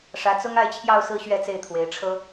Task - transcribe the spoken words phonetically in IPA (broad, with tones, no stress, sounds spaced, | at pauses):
ʂ ä˧˥ t͡s ʊ˥ ŋ a˥˧ ɪ̯ t͡ɕʰ j ɑ˥˧ ʊ̯ s ɹ̩˥˧ ɕ ɥ ɛ˥˧ t͡s e˥˩ ɪ̯ t̪ʰ w e˧˥ ɪ̯ ʈ͡ʂʰ ɤ˥